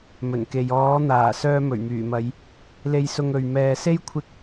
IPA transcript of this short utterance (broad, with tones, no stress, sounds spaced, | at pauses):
m ɵ˨˩ n k e˨ j ɔː˨˥ n̪ aː˨˩ s œː˧ m ɵ˨˩ ɥ m yː˨˩ m ɐ˨˧ j | l e˧ j s ʊ˧ ŋ ɵ˨ ɥ m ɛː˨ s e˥ j kʷʰ ɪ˥ k̚